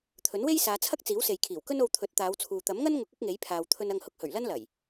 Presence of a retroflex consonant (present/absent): absent